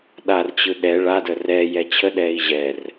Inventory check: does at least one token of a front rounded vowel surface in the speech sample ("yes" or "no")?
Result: no